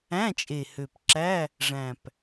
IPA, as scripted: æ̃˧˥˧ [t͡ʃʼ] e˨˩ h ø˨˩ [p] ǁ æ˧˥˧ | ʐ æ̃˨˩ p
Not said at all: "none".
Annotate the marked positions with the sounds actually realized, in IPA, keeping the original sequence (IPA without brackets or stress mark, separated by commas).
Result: t͡ʃʼ, p